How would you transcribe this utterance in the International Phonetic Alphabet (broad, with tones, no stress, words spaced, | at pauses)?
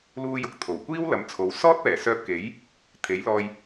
luː˧jʊ˨k̚t̪ʰo˨˩wkʷiː˥w lɐ˨˥mt͡sʰo˨˥w sɔː˥t̚pɛː˨˩sœː˧p̚ke˨˥j | t̪ʰe˨˥jlɔː˧j